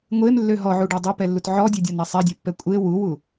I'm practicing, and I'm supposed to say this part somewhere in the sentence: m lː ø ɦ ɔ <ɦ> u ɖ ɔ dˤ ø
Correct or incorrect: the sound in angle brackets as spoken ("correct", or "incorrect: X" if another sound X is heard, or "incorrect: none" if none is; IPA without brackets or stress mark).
incorrect: ʕ